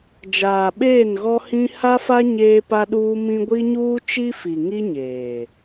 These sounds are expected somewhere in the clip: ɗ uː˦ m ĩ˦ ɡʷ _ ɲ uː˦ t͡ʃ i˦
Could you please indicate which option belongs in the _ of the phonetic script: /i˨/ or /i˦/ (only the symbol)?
i˦